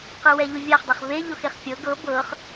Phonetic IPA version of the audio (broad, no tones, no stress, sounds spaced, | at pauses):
q ɯ w ɛ ʎ u vʲ a χ dˤ e χ v e ʎ o x e χ fʲ ɤ ɡ ɤ b ɤ χ